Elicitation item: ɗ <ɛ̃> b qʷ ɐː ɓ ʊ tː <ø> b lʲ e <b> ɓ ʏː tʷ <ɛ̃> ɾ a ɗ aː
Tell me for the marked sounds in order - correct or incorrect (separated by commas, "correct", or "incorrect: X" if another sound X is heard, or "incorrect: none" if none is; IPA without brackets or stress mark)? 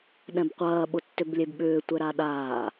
correct, correct, correct, incorrect: ɛ